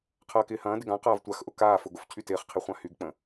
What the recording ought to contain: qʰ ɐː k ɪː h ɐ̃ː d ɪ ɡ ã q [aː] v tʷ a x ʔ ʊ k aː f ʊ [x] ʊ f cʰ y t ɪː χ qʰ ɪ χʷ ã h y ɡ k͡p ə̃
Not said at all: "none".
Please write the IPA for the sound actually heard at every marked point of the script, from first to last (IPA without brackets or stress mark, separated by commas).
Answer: aː, ɡ